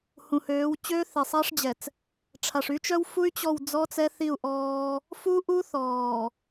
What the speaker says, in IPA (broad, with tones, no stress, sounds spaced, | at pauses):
h ũ˨ h øː˨˦ w t͡ɕ øː˦ θ e˨ sˤ a˦ ʂ d͡ʑ ɛ˨ t͡s | ʈ͡ʂʰ a˨ ʂ y˦ t͡ʃ œ˦ w f u˦ y̯ t͡ɕ ɔ˦˨ w d͡z ɔ˦ t͡s ɛ˦ θ i˦˨ u̯ ʔ ɔː˦ | f u˦ ʔ u˦ θ ɔː˨